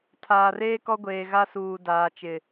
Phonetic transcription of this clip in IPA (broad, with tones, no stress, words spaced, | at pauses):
tʰaː˨reː˦kɔ˦ ɡʷeː˨ɣa˦suː˨ daː˨t͡ʃɪ˨